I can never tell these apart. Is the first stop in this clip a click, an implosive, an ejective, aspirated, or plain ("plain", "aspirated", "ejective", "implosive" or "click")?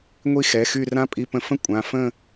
ejective